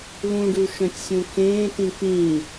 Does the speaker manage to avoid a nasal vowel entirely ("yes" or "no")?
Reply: no